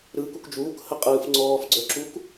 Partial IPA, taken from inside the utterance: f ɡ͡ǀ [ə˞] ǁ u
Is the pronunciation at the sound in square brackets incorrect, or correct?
correct